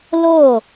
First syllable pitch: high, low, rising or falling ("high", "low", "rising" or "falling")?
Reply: falling